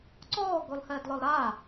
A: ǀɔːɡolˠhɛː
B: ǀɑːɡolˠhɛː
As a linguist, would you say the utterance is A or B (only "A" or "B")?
A